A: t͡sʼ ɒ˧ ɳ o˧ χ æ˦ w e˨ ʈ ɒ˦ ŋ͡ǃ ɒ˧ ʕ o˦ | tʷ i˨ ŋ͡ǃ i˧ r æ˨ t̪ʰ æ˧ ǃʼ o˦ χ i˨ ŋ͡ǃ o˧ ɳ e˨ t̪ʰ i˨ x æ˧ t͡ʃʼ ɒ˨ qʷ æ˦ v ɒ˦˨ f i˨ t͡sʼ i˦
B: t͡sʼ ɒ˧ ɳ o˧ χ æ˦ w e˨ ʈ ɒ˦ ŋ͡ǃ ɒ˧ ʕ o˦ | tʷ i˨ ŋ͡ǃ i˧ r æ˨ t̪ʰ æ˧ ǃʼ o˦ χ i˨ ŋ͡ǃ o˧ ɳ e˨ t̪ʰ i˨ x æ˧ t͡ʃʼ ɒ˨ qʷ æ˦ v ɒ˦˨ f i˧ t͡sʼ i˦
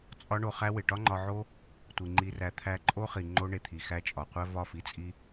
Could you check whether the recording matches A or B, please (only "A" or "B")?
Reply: B